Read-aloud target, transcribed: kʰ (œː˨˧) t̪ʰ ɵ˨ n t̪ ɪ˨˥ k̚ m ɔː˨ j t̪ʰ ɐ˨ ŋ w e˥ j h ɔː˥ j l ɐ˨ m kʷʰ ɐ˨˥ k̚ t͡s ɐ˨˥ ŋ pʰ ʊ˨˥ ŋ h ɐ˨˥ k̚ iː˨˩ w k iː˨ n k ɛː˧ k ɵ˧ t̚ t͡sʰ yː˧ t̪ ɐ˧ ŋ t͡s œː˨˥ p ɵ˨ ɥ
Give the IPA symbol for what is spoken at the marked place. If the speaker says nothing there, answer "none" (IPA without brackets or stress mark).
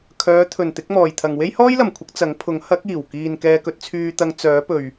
œː˨˧